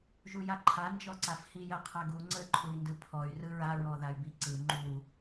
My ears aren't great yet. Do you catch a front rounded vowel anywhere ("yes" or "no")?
yes